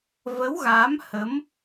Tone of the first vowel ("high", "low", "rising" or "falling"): rising